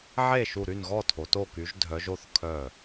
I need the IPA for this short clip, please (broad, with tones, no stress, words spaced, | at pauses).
ʕe˥˩ʃu˧˩ ɾy˥˩nɣɔ˥˩tʰo˩˧ to˧˩ky˩˧ʒ dʱœ˩˧ʒo˥˩θ kʰœ˧˩